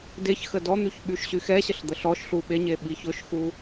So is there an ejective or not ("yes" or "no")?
no